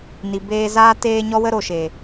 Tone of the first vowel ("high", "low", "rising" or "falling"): low